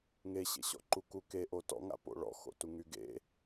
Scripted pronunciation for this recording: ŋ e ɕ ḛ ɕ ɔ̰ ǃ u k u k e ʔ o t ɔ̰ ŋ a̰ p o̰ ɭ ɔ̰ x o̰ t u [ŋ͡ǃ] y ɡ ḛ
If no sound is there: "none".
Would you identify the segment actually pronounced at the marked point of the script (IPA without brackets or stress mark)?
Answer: ŋ